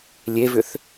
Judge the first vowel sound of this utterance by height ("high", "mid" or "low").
mid